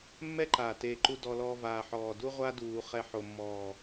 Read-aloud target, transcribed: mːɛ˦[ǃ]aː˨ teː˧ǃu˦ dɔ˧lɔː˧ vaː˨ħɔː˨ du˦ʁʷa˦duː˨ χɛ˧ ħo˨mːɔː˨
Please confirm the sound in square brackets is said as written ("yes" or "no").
yes